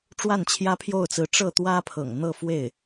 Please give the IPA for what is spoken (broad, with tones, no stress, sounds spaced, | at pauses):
ʈ͡ʂ w a˥˩ n t͡ɕʰ j ä˥ pʰ j o˥˩ ʊ̯ t͡s ɹ̩˧˥ ʈ͡ʂ ɤ˥˩ t̪ w ä˥ pʰ ɤ̰˨˩ ŋ n̪ ɤ˥˧ f w e˥˩ ɪ̯